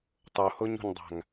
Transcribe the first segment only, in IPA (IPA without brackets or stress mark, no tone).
tˤ